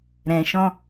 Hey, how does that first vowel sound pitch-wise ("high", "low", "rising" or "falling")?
low